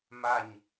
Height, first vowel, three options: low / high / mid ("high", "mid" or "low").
low